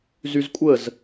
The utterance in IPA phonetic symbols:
zyzkʷʼəz

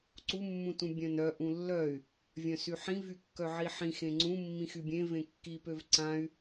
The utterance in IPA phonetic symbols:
ǀumːũtũ bʲœ̃nœ ʔũlːœy̯ | vʲœ̃syħĩ vykːœʕiħĩ xẽŋ͡ǀũ mːĩxybʲẽ vẽkːipøv ǀãy̯

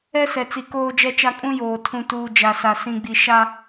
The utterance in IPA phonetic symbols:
ɛ˦sɛ˨t͡si˨ koː˦d͡ʒɛ˦t͡ʃa˦ kʼũ˦joː˨ tʰũ˨tuː˨ d͡ʒa˨sa˨ sĩ˨ɡ͡bi˨ ʃa˦

